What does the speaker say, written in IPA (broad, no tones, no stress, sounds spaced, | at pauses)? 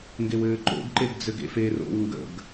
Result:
ŋ ɡ e w ɘː ǃ o̰ ɡ ǃ e ɡ d͡z ɘ ɡ ḛ f e r o̰ w ŋ ɡ ə̰ ɡ